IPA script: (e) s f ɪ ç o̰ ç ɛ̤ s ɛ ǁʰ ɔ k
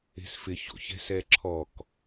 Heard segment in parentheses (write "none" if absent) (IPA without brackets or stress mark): e̤